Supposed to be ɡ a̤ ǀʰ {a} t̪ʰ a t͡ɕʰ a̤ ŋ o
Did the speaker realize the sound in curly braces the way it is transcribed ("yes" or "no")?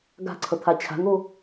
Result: no